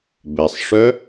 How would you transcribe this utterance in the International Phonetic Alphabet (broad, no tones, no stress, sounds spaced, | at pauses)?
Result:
b ɛ sˤ ʂ œ